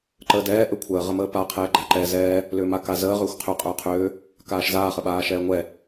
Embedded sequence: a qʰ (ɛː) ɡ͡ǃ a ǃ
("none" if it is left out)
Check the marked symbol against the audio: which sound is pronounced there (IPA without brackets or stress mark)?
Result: ɛː